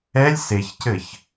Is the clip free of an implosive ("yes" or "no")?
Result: yes